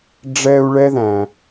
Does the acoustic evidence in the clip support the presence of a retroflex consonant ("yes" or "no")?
yes